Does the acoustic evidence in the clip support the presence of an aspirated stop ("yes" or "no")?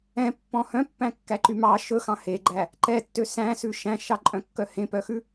no